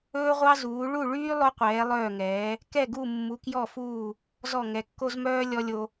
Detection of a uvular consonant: present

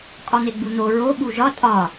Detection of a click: absent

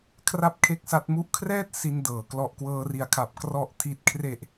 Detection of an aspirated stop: present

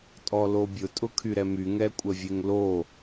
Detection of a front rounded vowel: present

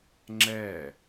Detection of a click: present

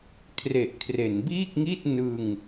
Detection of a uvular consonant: absent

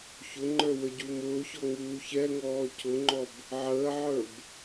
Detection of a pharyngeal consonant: present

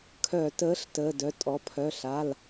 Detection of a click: absent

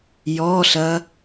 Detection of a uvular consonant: absent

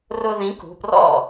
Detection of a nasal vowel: present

